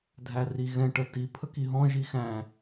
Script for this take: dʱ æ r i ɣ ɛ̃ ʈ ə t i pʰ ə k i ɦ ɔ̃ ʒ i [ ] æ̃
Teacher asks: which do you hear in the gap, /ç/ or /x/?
x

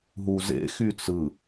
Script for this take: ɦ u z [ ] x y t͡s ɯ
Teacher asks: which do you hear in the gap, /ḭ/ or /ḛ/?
ḛ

